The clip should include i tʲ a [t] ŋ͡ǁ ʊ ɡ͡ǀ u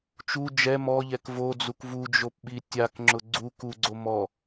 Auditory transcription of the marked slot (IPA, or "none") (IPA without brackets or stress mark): k